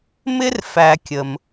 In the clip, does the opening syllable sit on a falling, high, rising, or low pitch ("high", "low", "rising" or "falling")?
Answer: high